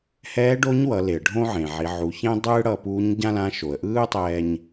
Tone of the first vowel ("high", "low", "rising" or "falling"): rising